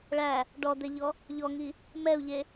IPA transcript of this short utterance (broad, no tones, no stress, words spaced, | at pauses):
ɭæ | ɖɔd̪ɛʎɔ | ʎɔŋi | mɛu̯ʎe